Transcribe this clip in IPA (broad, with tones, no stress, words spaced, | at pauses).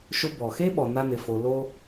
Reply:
ʃʊ˧ bɔ˨ xe˦ɓɔ˨ na˦nɪ˧fo˧ lo˦